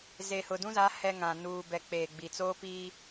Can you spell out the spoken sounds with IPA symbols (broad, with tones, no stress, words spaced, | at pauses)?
zeː˨hʊ˨dũ˦za˨˦ hɛ˦ŋã˨ nuː˨bɛ˨ k͡peː˨ɡ͡bi˨ t͡soː˦piː˦